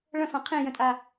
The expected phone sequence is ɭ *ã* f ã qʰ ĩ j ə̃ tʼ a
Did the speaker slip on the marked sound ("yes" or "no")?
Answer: yes